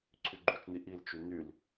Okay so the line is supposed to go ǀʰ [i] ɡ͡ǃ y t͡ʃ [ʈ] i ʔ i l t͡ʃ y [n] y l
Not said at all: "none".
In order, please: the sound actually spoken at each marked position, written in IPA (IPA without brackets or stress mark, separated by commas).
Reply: y, n, n